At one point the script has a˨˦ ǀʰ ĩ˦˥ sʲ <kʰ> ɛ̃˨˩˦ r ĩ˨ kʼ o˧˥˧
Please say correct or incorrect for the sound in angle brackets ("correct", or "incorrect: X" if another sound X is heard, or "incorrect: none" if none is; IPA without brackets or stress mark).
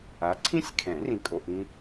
correct